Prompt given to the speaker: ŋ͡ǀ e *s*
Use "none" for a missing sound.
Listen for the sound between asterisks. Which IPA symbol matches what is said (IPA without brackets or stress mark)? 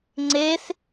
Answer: s